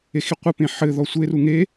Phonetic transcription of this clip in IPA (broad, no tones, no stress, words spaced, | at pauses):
exiqʷə pẽħɘ ðɔsʷeru ŋe